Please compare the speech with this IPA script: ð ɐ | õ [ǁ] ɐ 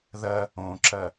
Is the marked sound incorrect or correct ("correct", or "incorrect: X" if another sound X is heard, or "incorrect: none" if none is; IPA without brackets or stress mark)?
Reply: correct